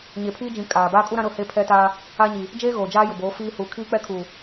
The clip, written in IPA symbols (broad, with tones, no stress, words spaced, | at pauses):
ɲe˨pʰiː˦d͡ʒĩ˨ kʼaː˨ baː˦kʼu˦ɾã˦ ɾʊ˦˨he˦pʰɛ˦taː˦ | a˦ɲi˨ | d͡ʒeː˦ ɣoː˨ d͡ʒaː˦jʊ˨boː˨˦ fiː˦ huː˨kʰiː˦k͡pɛ˦kʰuː˨